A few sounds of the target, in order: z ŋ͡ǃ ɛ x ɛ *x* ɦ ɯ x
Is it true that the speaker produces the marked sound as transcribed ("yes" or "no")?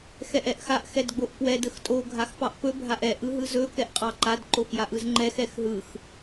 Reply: yes